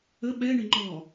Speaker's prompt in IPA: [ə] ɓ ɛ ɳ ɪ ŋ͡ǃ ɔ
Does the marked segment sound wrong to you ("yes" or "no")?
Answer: no